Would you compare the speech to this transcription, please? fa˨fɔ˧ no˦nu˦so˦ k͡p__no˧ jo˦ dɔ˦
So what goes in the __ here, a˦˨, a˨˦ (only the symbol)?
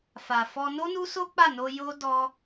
a˦˨